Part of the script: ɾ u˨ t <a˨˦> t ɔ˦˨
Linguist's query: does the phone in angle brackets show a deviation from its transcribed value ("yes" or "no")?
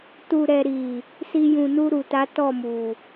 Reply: no